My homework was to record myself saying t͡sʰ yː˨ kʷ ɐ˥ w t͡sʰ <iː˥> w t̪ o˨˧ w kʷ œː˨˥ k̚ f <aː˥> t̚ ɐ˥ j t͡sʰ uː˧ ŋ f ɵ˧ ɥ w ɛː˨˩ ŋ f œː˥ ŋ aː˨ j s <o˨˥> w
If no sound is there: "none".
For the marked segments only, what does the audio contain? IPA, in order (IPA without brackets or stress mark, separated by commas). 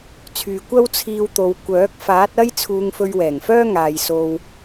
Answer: iː˧, aː˨˥, o˧